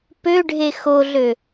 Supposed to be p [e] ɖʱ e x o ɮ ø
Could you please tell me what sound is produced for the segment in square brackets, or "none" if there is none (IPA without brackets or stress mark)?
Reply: ø